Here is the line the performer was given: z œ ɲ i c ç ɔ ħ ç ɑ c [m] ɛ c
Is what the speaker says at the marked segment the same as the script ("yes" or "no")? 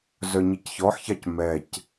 yes